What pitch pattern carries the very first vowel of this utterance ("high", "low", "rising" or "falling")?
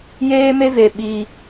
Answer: high